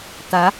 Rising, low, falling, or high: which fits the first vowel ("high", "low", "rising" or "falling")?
rising